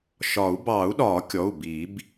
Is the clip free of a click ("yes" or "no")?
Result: yes